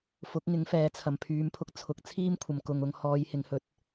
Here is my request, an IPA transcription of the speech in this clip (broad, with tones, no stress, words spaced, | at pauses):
fʊ˨˥k̚ŋɪ˨˥ŋfɛː˨˥t͡sʰɐ˨m pʰyː˨˧mpʰʊ˧k̚t͡sʰʊ˨˥k̚ t͡sʰiː˥mkʷʰɐ˨mkʊ˨ŋʊ˧ŋ hɔː˨˧jhɪ˨˧ŋhɵ˨˥t̚